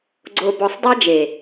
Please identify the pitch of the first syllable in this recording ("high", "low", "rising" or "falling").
low